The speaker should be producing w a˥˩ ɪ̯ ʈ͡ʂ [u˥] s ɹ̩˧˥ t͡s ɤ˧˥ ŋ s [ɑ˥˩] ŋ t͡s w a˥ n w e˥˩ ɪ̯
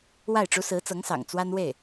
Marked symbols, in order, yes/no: yes, no

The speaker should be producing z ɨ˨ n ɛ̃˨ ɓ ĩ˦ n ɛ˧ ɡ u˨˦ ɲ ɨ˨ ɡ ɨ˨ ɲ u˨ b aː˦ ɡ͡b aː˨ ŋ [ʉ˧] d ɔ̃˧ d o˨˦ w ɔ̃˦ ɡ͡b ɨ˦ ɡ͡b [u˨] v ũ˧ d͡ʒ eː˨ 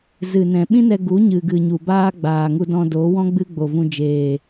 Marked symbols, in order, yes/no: no, no

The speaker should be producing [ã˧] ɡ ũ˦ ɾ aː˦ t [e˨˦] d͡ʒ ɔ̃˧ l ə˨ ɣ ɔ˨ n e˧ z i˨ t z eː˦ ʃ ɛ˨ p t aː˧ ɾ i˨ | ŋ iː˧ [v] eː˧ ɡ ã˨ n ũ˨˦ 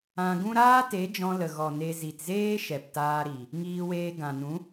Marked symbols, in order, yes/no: yes, yes, no

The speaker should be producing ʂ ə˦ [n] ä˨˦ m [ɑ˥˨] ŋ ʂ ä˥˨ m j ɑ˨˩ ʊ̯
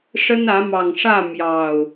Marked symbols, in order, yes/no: yes, no

